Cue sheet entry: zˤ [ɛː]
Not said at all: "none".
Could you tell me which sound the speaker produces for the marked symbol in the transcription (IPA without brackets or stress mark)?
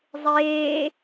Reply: eː